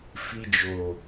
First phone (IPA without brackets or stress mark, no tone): f